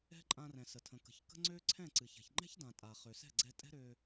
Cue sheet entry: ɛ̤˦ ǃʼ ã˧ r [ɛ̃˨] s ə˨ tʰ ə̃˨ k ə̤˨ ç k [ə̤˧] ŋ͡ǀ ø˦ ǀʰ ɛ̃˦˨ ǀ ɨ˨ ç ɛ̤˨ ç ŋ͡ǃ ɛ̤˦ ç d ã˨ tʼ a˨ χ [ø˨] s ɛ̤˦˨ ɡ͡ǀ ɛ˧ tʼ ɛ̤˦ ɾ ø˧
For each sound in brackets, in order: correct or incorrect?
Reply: correct, incorrect: ə̤˦, correct

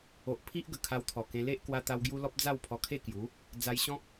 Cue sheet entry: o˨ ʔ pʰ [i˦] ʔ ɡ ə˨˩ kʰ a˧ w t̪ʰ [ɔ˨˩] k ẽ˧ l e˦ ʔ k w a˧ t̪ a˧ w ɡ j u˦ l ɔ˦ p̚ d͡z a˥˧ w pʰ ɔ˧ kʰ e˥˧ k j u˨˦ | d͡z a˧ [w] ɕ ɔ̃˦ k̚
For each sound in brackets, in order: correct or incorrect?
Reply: correct, correct, incorrect: j

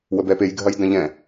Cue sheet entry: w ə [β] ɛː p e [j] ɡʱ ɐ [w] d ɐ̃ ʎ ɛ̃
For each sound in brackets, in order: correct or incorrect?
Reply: incorrect: b, correct, incorrect: j

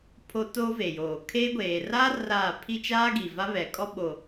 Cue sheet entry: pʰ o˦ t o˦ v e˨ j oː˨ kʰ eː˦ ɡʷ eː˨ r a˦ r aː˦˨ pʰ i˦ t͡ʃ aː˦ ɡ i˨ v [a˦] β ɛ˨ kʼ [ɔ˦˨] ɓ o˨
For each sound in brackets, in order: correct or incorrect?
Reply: correct, incorrect: ɔ˦

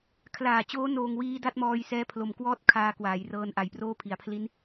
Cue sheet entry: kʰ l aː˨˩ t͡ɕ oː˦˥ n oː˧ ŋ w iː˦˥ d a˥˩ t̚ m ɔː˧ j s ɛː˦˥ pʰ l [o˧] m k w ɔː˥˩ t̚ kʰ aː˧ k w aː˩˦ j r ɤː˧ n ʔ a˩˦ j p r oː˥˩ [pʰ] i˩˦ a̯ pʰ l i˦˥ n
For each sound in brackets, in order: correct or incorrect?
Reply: incorrect: o˩˦, correct

